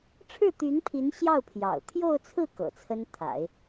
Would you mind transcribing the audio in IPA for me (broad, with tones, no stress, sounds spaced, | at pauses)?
ʈ͡ʂʰ ɻ̩˥˩ t̪ y˧˥ n pʰ i˧˥ n ɕ j ɑ˥˩ ʊ̯ pʰ j ɑ̰˨˩ ʊ̯ t̪ʰ j o˥˧ ʊ̯ t͡sʰ ɹ̩˥˩ k ɤ̰˨˩ t͡sʰ ə˥ n t̪ʰ a̰˨˩˦ ɪ̯